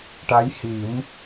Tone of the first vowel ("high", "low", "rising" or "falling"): rising